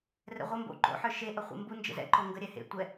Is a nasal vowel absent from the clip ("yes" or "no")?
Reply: yes